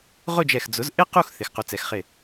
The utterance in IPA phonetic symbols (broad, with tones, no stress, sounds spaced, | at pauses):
ʁ ʊ˥˧ d͡ʒ ɛ˧˩ x d͡z ʊ˩˧ z ʔ ɪ˥ q u˥˧ x θ ɪ˩˧ x q u˩˧ t͡s ɛ˩˧ x χ ɪ˧˩